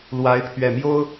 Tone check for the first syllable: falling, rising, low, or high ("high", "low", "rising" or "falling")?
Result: rising